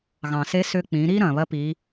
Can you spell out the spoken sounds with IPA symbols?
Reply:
ɣ ɑ̃˩ s e˧˥ s ʏː˧ k͡p ĩː˩˧ ɾ iː˥ ɾ ɐ̃ː˩ β ɐ˧˥ p iː˩˧

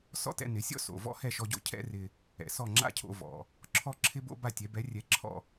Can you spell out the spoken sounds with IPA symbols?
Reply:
s ɔ̰˥ t ɛ̰˧ n ɪ˩˥ sʲ ɔ̰˥ s o̰˩ v ɔ̰˥ h ɛ˥˩ ʃ ɔ˧ ɟ o̰˥ cʰ ɛ̰˥ r ɪ˧ | ɛ̰˩ s ɔ˥˩ ŋ͡ǁ a̰˥ cʰ o̰˧ v ɔ̰˩ | ǁʰ ɔ˥ ǁʰ ɪ˥ b o̰˥ b a˥˩ tʲ ɛ˩˥ b ɛ˩˥ rʲ ɛ˩˥ ǁʰ ɔ̰˥˩

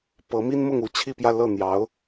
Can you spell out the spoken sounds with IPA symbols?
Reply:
p ɤ˧˥ m i˥ n m ʊ˥˧ ŋ u˥˧ t͡ɕʰ i˥˧ p j ä˥˧ l ɤ˥˩ n̪ j ɑ˧˥ ʊ̯

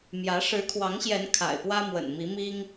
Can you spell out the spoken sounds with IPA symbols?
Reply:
m j ä˨˦ ʂ ɻ̩˨˦ kʰ w ɑ˨˦ ŋ ɕ j ɛ˨˦ n kʰ a̰˨˩ ɪ̯ p w ä˦ m w ə̰˨˩ n m i˨˦ m i˦ ŋ

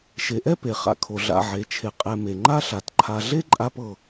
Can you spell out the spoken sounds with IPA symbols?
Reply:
ʃ e˨ ʔ ɛ˥ p e˩ χ a̰˨ kʰ o˩ ɮ a̰˩ ʕ e˩ t͡ʃʰ e˩ qʼ ɛ˨ m e˩ ŋ͡ǃ a˥ ɬ a˩ t ǃʰ a˨ ɮ e˥ ǃʼ a˦ p ɤ˨

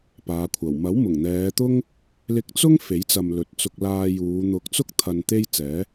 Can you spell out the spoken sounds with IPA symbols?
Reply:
p aː˨˧ kʷʰ ɐ˨˩ w m ɐ˨˥ w m ʊ˨˩ ŋ n̪ ɛː˨˧ t̪ ʊ˥ ŋ | l ɪ˧ k̚ t͡s ʊ˥ ŋ f e˨˥ j t͡s ɐ˨ m l ɵ˨ t̚ t͡s ʊ˧ k̚ l aː˧ j uː˨˧ n̪ ʊ˨˥ k̚ t͡s ʊ˥ k̚ t̪ʰ ɐ˧ n t̪ e˥ j t͡s ɛː˨˥

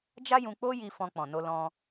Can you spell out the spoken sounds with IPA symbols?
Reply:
d͡ʒ a˦ j ũ˧ k͡p o˦ j i˧ f ɔ̃˧ k͡p ɔ̃˨ n o˧ l ɔ̃˧

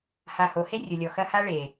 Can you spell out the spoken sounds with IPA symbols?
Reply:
h a˨ h o˨ h e˦ rʲ ʊ˨ lʲ ɔ˨ x ɐ˦ h a˦ ɭ e˨

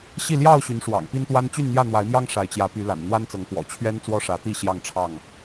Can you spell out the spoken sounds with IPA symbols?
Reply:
ɕ i˥˨ l j ɑ˥˨ ʊ̯ ɕ y˨˦ n ʂ w ɑ̰˨˩ ŋ p i˦ n t̪ w a˦ n t͡ɕ y˥˨ n n̪ j ä˥˨ n̪ w a˨˦ ɪ̯ m j ɑ˦ ŋ ʂ a˨˦ ɪ̯ t͡ɕ j ä˨˦ p y˨˦ l a̰˨˩ n n̪ w a˦ n t͡s ɤ˨˦ ŋ k w ɔ̰˨˩ t͡ɕʰ ɥ ɛ˦ n t͡s w ɔ˦ ʂ ä˨˦ t̪ i˥˨ ɕ j ɑ˥˨ ŋ ʈ͡ʂʰ ɑ˥˨ ŋ

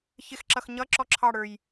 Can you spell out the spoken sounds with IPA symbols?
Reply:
ç ɪ x ǁ ʌ x ɲ ʌ ǁ ɔ ǁʰ ɑ ɽ ə˞ j

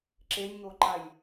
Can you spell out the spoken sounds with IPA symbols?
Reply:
ǁ e nʲ ŋ o ǃ a j

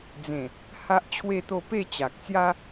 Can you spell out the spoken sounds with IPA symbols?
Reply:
d͡z ẽ˨˩ | h a˦ ʔ t͡ɕʰ w e˥˧ t̪ o˥˧ p e˥˧ t͡ɕ a˨ k̚ t͡s j a˦

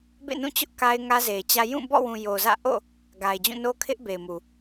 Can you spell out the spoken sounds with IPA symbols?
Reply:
b ḛ˦˨ n ũ˦˨ t͡ɕ ʊ˦ ʔ k a˦ ɪ̯ ŋ ä˦ z e˨ ɪ̯ t͡ɕ ä˦ j ũ˦˨ b ɔ̰˦˨ w ũ˨ j o˨ z ä̰˦˨ ʔ o̰˦˨ | ɡ a˨ ɪ̯ d͡ʑ ũ˦˨ n o˦ kʰ ɪ˦ ʔ b e˨ ɪ̯ m u˨

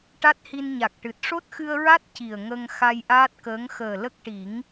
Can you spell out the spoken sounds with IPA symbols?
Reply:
ʈ a˦˥ t̚ h i˧ n ɲ a˨˩ k̚ ʈ ɨ˨˩ t̚ ʂ o˦˥ t̚ x ɨ˧ ə̯ ɹ a˦˥ t̚ c i˨˩ ə̯ ŋ ə˧ ŋ x a˧ j ʔ aː˦˥ t̚ k əː˧˥ ŋ x əː˨˩ l ə˦˥ k̚ ʈ i˨˩˦ ŋ

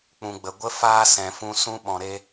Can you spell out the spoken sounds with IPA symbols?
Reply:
k͡p ũ˨ ɡ͡b ə˨ ɡʷ ə˦ f aː˦ s ɛ̃˨ f ũ˧ s ũ˧ ɓ ɔ̃˨ ɾ e˧

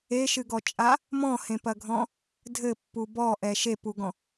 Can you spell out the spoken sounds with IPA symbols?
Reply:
e ʃ ɨ ɡ ɔ t͡ʃʼ a | m ɔ̃ h ẽ p ɐ ɡʱ ɔ̃ | dʱ ɘ pː u b ɔ ʔ ɛ ʃ e p u ɡ ɔ̃

